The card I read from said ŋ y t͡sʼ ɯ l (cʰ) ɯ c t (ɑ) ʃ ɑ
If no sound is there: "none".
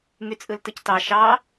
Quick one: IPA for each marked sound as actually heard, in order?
t, ɑ

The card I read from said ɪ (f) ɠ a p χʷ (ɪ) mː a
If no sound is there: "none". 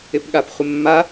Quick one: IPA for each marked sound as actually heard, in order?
p, ɪ

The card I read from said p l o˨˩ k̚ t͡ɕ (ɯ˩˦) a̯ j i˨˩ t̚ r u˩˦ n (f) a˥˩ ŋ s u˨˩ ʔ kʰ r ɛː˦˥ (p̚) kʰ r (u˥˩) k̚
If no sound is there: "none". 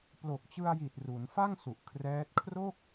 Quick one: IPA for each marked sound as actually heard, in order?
ɯ˧, f, t̚, o˥˩

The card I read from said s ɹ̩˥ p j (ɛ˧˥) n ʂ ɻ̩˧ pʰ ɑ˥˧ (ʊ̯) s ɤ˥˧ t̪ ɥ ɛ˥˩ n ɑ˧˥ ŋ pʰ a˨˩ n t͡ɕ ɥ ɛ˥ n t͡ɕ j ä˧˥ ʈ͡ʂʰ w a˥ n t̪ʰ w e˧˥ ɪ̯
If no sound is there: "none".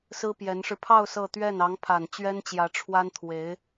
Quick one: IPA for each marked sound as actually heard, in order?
ɛ˧˥, ʊ̯

